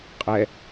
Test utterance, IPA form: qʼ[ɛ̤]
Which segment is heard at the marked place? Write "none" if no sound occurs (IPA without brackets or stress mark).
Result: ɛ